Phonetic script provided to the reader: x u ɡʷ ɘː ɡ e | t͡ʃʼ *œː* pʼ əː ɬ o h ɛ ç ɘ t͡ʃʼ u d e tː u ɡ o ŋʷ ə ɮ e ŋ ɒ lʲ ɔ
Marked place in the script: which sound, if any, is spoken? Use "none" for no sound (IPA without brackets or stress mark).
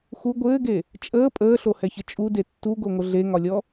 əː